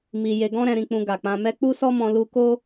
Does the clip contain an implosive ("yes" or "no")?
no